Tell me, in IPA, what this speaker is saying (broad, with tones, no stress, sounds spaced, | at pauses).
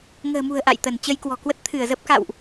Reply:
ŋ ə̤ː˨˩ m ṳ˨˩ ə̯ ʔ a̰˧˨ j t̪ ə˧˩ n t͡ɕ ə˧ j k w ɔ̤˨˩ k w ə˦˥ t̚ t̪ʰ ɨ˧˩ ə̯ z ə˦˥ p̚ k a̰˧˨ w ʔ